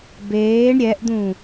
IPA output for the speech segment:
b eː ɳ ɾʲ ɛ ʔ d̪ ũ

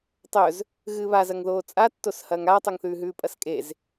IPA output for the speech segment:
tˤ ɵ z | ɣ ɨː β a z ɐ ŋ ð oː t͡sʼ a tː o s h ɐː ŋ aː tˤ ɵ ŋ θ ʉː ɦ ʉː pʼ ɐ s kʼ e z

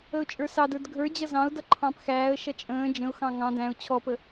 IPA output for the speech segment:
ə ʊ̯ t͡ʃʼ ə˞ s ɑ d ə˞ d ɡʱ ə˞ d͡ʑ ʌ z ɑ̃ ʊ̯ d ʌ ǃʰ ɑ̃ p x æː ə̯ ʃ ʌ t͡ʃʼ ə̃ː d͡ʒ ə̃ ʊ̯ x ɑ̃ ŋ ɑ̃ d æ̃ ʊ̯ t͡ɕʰ ɔ p ə

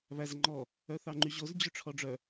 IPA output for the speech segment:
β æ z ŋ͡ǃ ɔ | œ θ ɑ ŋ͡ǃ y ʑ o z d͡ʑ ø ʈ͡ʂʰ ɔ ɖ͡ʐ œ

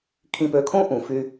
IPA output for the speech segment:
kʰ ĩ˨ p ø˨ kʰ õ˦ ʔ ũ˨ f y˦

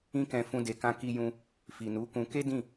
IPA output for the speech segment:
ĩ˦ k ɛ̃˧ f ũ˧ d e˨ k ã˧ k i˧ j ũ˧ | f i˨ n u˨˦ k ũ˧ k e˦ d ĩ˦˨

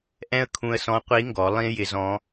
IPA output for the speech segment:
ʔ ɛ̃˥ ə̯ kʰ ũ˧ ə̯ s ɔ̃˧˥ qʷ i˧˥ ŋ ɡ ɔ˩˧ lˠ ĩ˥ j ɪ˧ z ɔ̃˧˥

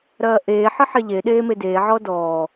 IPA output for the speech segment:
ɾ ɐː ʔ eː ħ ə ħ e ʎ e ɗ eː m e d eː ʕ ɔ d ɔː

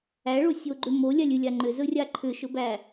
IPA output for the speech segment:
æ ɭ o sʲ o ɡ͡ǃ ʏ m o lʲ a lʲ ɨ lʲ a ŋ͡ǃ ʏ z ɵ rʲ a ǃʰ ʏ ʃ ɵ b æ

